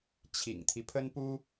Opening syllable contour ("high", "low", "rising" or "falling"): low